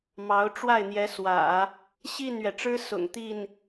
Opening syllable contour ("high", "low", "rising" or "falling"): rising